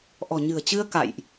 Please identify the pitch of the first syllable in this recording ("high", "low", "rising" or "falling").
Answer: low